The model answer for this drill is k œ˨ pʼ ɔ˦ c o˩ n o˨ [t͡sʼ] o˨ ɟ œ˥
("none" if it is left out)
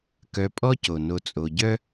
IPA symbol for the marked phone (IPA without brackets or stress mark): t͡sʼ